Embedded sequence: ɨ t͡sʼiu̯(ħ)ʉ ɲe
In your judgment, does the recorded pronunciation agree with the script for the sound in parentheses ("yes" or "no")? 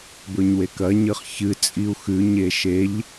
no